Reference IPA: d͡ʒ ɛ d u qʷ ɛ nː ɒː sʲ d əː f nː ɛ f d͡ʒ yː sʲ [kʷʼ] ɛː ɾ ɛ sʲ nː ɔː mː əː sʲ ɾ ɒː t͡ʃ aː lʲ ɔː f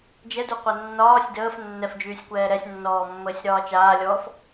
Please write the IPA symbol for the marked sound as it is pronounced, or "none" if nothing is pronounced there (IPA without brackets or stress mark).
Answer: kʷ